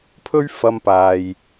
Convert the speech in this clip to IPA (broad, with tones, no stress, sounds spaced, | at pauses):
pʰ ɵ˥ ɥ f ɐ˧ m p aː˨ j